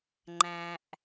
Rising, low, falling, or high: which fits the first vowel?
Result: low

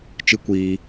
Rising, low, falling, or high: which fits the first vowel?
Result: high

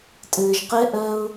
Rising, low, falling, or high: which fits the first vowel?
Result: low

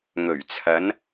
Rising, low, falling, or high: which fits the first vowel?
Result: low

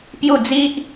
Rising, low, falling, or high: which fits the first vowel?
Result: falling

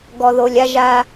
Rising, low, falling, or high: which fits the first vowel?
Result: low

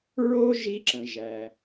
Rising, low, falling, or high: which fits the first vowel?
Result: high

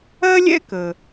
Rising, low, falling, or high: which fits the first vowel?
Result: high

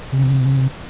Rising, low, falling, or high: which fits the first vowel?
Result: low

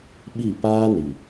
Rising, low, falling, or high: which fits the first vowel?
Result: falling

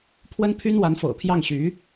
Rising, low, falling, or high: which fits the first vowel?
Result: high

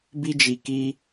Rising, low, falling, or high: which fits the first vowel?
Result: high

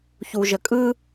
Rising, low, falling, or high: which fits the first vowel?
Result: low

